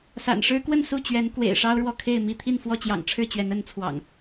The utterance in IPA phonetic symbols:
sa̰˨˩nʂɻ̩˦kwə˥˨n su˥˨t͡ɕɥɛ˨˦n kwḛ˨˩ɪ̯ʂɑ˦ʊ̯ɻwɔ˨ kʰe˥˨ɪ̯mi˥˨ t̪ʰi˥˨nfwɔ˥˨ t͡ɕjɑ̰˨˩ŋʈ͡ʂʰɻ̩˥˨t͡ɕɥɛ˨˦n ə˨˦n t͡sʰwɑ̰˨˩ŋ

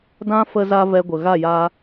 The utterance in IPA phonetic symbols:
dã˦ fə˧za˧ vɛ˧ɡʷə˨ ɣa˦˨jaː˧

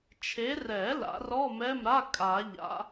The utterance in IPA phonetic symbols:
t͡ʃʰe˨˦rɛ˨˩˦ la̰˨˩˦rɔ˧˥˧mɛ˧˥˧mɾa˧˥˧ kʼa˨˩˦ ʎa̰˨˦

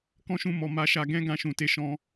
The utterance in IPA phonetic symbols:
kɔ̃˦ʃũ˦˨mɔ˨ ma˧ʃa˧ ɡɛ̃˦ ɡã˧ʃũ˨te˧ʃɔ̃˦

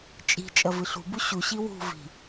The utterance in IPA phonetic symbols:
t͡ʃʼi̤ t͡ʃʼɐvɨɬṳ buɕu ɕiwṳ vi̤

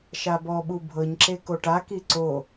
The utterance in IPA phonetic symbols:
ʃabɔɓu bʱɤɲǁe koʈaki ǀo

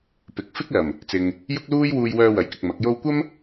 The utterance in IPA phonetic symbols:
pɪ˨k̚fɪ˥k̚lɐ˨˩m | t͡sɪ˨ŋ | jʊ˥k̚luː˥j wuː˧jwœː˧wɐ˨˥jkɪ˨k̚ mɐ˨˥k̚jo˥w kʷɐ˥m

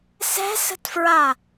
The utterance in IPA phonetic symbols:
sɛ̤sə̤tfɹa

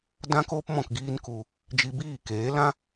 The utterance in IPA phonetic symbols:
dã˦koː˦p mɔ̃˦˨kɡiː˦nku˧ | d͡ʒi˧biː˦˨keː˨˦ lã˦

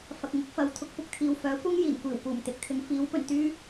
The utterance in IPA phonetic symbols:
fɐ˨k̚ŋʊ˨˥k̚ fɐ˨wt̪ʰʊ˧k̚ pʊ˧k̚t̪ʰiː˨wfœː˨˥kʷɐ˥ŋ jiː˨˩nkʷiː˨˩w kuː˨˩mt̪ɪ˨˥k̚t̪ʰɪ˨˧ŋ fiː˨˥w pɵ˨˩nt̪yː˥

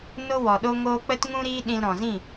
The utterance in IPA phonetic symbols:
no˦wɔ˨ɗo˦ŋoː˦ k͡pə˦t ŋũ˦ɾiː˦ ɗĩ˧lɾɔ̃˨zĩ˦˨

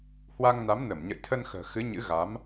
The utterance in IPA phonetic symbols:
hwa˧ŋna˨˦mnə˧˩m ɲə̰˧˨jt̪ʰə˧nxə̤ː˨˩ xɨ˨˦ɲɨ̰˧˥ɣa˨˦m

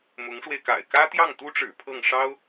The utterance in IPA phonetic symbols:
mʊ˧˥ŋʂwe˧ɪ̯ka̰˨˩ɪ̯ kä˥t̪jɑ˥˩ŋt̪u˥ʈ͡ʂɻ̩˨˩ pʰɤ˥˩ŋʂɑ˥ʊ̯

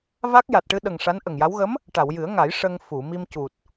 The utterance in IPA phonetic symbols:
va˦˥k̚ ja˨˩t̚ʈɨ˧ɗə˨˩ŋ ʂa˧˥nʔə˨˩ŋja˧˥w ɣə˧˥m | ʈa˨˩˨wjɨ˨˩˦ə̯ŋa˨˩˦j ʂə˧ŋ fu˨˩˨mi˧mcu˨˩t̚

